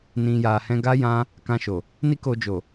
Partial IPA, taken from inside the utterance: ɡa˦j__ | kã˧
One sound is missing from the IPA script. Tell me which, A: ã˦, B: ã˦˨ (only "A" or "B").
A